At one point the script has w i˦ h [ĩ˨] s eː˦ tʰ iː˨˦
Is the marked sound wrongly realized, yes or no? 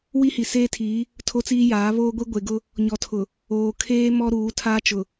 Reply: yes